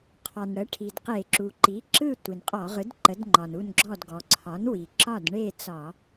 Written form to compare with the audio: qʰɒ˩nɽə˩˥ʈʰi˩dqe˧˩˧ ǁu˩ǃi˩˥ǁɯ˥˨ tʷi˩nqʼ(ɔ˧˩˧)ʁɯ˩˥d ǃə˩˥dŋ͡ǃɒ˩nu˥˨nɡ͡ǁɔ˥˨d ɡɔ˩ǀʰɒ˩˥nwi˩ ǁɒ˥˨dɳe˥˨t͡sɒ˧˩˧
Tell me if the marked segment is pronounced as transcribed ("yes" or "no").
yes